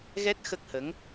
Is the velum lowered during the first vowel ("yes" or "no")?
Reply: no